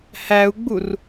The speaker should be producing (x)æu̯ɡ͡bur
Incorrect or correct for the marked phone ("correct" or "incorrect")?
incorrect